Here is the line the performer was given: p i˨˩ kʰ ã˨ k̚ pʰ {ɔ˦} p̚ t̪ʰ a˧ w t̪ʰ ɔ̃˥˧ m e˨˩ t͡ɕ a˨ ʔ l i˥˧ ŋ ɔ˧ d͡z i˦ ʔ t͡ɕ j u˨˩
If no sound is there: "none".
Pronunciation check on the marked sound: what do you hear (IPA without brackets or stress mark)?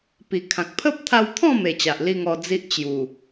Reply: ə˦